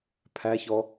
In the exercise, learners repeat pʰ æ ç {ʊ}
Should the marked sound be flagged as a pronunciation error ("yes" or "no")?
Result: yes